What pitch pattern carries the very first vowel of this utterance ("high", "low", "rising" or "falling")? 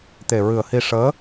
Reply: low